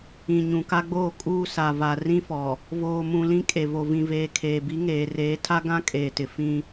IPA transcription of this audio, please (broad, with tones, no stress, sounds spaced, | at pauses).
ĩ˨ ɲ ũ˨ k a˦ ɡ͡b oː˦˨ kʼ uː˦ s a˨ v a˨ r ĩ˦ f ɔ˨ | v oː˨ m ũ˨ l ĩ˦ kʼ e˨ v o˨ v ĩ˨ v eː˨ kʰ eː˨ b i˨˦ ŋ eː˨ r eː˨˦ tʰ a˦ ɡ ã˦ kʼ eː˨ t ɪ˨ f ĩ˦